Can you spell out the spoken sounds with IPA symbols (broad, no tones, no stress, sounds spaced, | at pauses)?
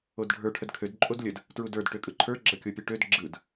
o d ɖʱ ə˞ ʈʰ ə d kʰ ø d ǃʼ o d lʲ ə d | t ɹ u d ə˞ d ʈ ø kʼ ɯ ǃʰ ə˞ ɡ͡ǁ ʌ kʲ o pʲ ɯ ʈ ø d ɡ͡ǁ ɯ d